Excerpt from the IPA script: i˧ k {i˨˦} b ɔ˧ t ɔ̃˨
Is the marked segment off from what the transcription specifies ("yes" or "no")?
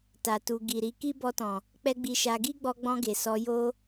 yes